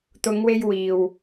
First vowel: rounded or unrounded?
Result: rounded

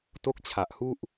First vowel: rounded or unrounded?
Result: rounded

